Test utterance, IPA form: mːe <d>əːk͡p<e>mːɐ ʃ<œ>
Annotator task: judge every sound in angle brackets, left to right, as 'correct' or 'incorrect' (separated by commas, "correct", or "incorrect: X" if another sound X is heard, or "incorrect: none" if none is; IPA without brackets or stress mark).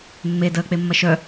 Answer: correct, correct, correct